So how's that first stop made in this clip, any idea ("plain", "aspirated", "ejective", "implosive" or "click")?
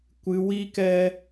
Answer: plain